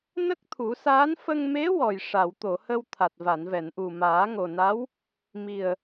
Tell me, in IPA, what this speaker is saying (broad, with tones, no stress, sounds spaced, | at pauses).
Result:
n ə˦˥ k̚ t̪ʰ u˨˩˦ s aː˧˥ n f ə˧ ŋ m e˧˥ w ɔ˨˩ j ʂ a˨˩˨ w t̪ o˨˩˨ h ə˧ w t̪ʰ a˨˩ t̚ v a˨˩˨ n v ɛ˨˩˨ n ʔ u˨˩ m aː˨˩˦ ŋ o˨˩ n a˧˥ w | m i˨˩ ə̯